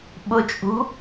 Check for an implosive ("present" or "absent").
present